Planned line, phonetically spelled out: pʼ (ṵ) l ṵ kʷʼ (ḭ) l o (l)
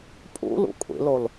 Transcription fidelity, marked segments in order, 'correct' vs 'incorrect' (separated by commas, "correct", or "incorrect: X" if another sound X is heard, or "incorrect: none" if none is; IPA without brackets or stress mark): correct, correct, correct